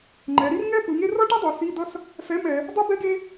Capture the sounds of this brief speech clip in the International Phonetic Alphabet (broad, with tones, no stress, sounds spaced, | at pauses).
ŋ͡ǃ ɛ˩˧ ɾ i˥ r ŋ ɛ˥ p ɯ˩˧ ŋ e˥ r ʌ˥ ʈ i˥ dˤ o˩˧ s i˧˥˧ d̪ ʌ˥ s | f ɛ˧˥˧ m ɛ˩˧ | dˤ ɯ˥ b ɛ˥ ɡ e˥